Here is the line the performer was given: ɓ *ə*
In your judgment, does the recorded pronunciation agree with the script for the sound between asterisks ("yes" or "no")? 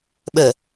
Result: yes